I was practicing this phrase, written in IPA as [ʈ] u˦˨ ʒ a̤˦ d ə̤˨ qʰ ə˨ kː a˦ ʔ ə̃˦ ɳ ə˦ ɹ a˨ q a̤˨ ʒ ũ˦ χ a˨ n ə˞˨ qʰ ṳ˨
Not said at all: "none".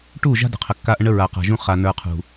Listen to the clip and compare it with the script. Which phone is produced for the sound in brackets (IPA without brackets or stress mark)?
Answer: ʈ